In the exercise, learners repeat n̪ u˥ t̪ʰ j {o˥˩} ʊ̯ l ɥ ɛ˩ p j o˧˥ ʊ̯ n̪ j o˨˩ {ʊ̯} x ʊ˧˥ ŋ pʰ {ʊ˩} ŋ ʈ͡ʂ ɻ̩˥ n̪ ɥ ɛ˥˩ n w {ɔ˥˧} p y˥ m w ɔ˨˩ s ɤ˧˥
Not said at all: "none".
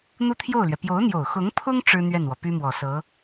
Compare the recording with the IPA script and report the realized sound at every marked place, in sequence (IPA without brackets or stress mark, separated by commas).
o˥˩, ʊ̯, ʊ˥, ɔ˩